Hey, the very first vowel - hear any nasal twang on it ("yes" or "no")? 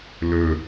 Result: no